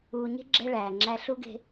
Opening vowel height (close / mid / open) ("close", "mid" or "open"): close